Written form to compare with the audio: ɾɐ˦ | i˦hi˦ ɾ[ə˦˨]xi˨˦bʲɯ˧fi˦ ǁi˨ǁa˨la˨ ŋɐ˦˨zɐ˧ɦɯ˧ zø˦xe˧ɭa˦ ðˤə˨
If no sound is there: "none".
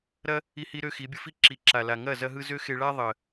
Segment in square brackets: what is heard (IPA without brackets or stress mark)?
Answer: ø˦˨